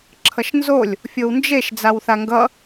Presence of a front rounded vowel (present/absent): absent